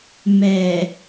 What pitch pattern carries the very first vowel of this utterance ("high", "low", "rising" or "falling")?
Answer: low